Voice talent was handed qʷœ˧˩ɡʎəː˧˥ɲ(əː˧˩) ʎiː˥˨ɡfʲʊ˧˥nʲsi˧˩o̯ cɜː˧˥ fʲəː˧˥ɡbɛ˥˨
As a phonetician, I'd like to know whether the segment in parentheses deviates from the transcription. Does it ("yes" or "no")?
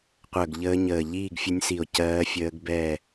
no